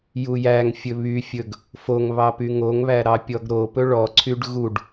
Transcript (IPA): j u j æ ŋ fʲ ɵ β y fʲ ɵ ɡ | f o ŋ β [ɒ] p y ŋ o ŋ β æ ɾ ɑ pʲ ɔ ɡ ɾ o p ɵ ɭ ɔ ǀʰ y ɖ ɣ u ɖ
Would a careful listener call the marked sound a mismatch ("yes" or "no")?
yes